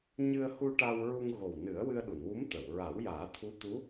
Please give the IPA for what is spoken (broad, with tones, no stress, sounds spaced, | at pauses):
ɲ ɨ˧ ə̯ h u˧ ʈ a˧ w ɹ u˧ ŋ ɣ o˨˩ w n ɨ˨˩˦ ə̯ w ɨ˧ ə̯ ɗ u˨˩˨ n w u˧˥ m t̪ ə˨˩˨ w ɹ a˨˩˦ w j aː˨˩˦ t̪ʰ u˧˥ t̪ u˧˥